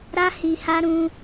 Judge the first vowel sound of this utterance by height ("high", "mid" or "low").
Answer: low